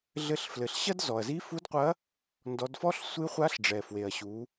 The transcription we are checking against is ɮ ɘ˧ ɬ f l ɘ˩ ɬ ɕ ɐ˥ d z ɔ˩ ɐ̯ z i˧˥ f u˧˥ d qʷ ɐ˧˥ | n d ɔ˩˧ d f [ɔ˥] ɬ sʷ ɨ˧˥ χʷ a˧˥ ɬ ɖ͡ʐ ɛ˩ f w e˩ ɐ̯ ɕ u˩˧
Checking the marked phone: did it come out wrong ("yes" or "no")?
no